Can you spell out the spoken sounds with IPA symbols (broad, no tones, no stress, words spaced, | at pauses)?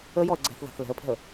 əjɔə̯ ɡ͡ǀɛ̤θ ða̤θlɛ̤ə̯pʰɛ̤ə̯